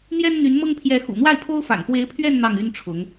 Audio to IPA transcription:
n̪ j ɛ˥ n n̪ y˧˥ n m ɤ˥ ŋ pʰ j ɛ˧˥ x ṵ˨˩ n̪ w a˥˩ ɪ̯ pʰ o˥ ʊ̯ f a̰˨˩ n p w e˧˥ ɪ̯ pʰ ɥ ɛ˥˧ n n̪ ɑ˥˩ ŋ y˥ n ʈ͡ʂʰ ʊ˧˥ ŋ

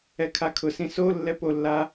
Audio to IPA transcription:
ɛ kʰ a kʰ ʊ s ĩ s o lː ɛ p o lː a

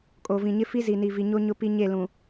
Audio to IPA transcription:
kʼ o˨ v ĩ˨ ɲ ɪ˦ f i˦ z i˨ n i˨ v i˨ ɲ o˦ ɲ ʊ˦ p i˦ ɲ e˦˨ l ũ˨

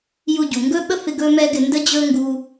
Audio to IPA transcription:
j u˧ ɟ u˩ ŋ ɡ ɵ˥ ɓ ə˥ f ɪ˧ ɡ ɵ˥ m ɛ˥ ɡ ɪ˧ n d ə˥ d͡ʑ ɵ˥ ŋ ɡ u˧

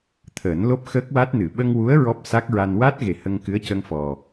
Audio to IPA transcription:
t̪ʰ əː˨˩˦ n l o˦˥ p̚ x əː˦˥ k̚ w a˦˥ t̚ n ɨ˨˩˨ ɓ ə˧ ŋ w u˧˥ ə̯ ɹ ɔ˦˥ p̚ s a˦˥ k̚ ɹ a˧ n w a˦˥ t̚ ɣ e˨˩ h ə˧ ŋ k ɨ˧˥ ə̯ c ə˧ ŋ f ɔ˨˩

